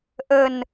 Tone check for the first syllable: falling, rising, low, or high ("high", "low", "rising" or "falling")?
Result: low